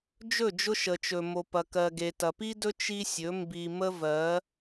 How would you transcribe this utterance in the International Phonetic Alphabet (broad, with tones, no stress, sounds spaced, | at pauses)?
d͡ʒ ɵ˦˨ d͡ʒ ʊ˦ ʃ ə˨ t͡ʃ ɵ˨ m o˨ p ɐ˨ k ɜ˨ ɡ e˨ t ɐ˨ p i˦ d ɵ˦ t͡ʃ i˦ sʲ ɵ˨˦ m b i˨ m ə˦ v ɜ˨˦